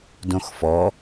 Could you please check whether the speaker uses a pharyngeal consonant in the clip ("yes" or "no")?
no